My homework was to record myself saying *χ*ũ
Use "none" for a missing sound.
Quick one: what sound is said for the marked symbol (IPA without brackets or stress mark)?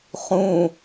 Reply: χ